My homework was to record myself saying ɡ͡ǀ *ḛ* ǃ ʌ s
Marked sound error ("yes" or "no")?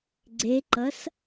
yes